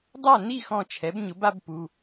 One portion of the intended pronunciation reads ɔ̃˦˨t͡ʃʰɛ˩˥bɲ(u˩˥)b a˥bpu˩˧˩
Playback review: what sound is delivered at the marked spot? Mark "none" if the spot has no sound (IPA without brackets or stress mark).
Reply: ʊ˩˥